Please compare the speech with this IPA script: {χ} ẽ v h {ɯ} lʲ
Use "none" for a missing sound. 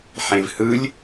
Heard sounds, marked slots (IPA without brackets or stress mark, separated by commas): ħ, ɯ